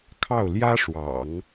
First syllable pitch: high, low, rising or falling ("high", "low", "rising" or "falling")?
falling